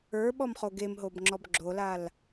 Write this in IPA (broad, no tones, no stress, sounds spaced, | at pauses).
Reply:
ə˞ ɓ ɔ m χ o ɡ e m ɦ o b ŋ͡ǁ ɔ b ɡ͡ǁ o l a l